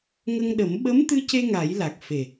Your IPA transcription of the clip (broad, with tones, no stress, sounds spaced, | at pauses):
ŋ ə˧ ŋ ɗ ə˨˩˦ m ɓ ə˧˥ m t̪ ɨ˧ c e˧ ŋ a˨˩˦ j l a˨˩ k̚ f e˨˩